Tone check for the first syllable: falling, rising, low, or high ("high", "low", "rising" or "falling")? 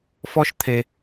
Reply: high